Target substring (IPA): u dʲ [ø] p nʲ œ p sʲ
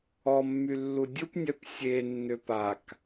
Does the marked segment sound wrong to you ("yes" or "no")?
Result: yes